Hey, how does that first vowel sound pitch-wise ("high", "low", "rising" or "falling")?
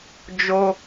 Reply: high